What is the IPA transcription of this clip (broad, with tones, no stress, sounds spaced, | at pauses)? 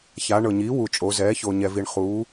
ç a˩˧ ɳ ɤ˩ ɲ iː˩˥ w u˩ t͡ʃʼ o˩˧ z ɛː˩˥ ç o˩ ɲ ɛ˩ v i˩ ɳ χ uː˩˥